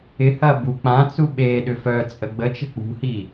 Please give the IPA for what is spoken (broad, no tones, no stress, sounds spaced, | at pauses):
ɪ h ɐ b u k͡p ã t͡s u ɓ e ɗ ʏ f œ t͡sʼ ə ɡ͡b ə t͡ʃ ə̤ k͡p ṳ h i